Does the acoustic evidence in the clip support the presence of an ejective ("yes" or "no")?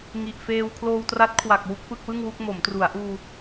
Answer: no